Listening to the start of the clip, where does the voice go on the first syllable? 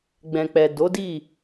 low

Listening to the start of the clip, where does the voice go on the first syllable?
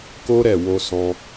high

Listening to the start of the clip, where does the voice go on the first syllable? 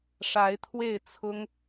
rising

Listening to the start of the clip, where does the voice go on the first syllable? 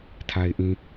low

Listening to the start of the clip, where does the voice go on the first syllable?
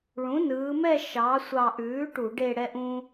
rising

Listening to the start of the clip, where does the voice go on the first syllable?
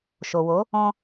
low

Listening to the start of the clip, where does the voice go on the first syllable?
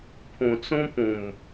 low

